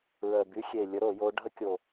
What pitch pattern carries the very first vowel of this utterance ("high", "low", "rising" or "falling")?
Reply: low